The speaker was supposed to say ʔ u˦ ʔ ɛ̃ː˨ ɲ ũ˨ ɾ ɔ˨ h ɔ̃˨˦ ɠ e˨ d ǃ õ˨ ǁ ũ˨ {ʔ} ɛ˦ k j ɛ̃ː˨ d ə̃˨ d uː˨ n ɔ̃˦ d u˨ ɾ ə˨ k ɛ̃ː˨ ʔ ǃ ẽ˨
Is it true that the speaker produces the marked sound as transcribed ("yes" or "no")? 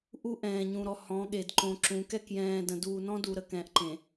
no